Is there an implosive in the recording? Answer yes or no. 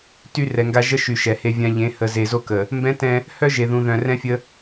no